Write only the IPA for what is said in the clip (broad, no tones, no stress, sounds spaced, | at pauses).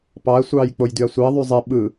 p ɑ ɐ̯ sʷ ɑː j k͡p o j d y ɐ̯ sʷ i ɐ̯ ðˤ y zˤ i ɓ ɯ